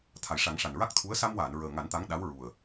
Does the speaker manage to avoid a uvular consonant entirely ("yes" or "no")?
yes